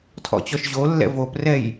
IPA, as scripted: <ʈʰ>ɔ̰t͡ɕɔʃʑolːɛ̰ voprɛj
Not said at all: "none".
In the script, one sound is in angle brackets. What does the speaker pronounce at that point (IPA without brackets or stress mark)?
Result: tʰ